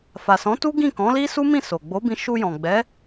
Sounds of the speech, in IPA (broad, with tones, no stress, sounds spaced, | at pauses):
f a˨ s ɔ̃˨˦ t u˦ ɡ ĩ˦˨ k ɔ̃˨˦ l i˦ s u˦ m ĩ˦˨ s o˨ ɡ͡b o˨˦ b ĩ˧ ʃ u˧ j ɔ̃˨ ɡ͡b ɛ˨˦